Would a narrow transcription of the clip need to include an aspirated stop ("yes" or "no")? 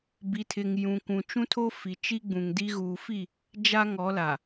yes